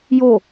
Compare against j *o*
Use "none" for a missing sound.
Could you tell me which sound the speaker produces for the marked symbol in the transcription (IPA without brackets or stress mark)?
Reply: o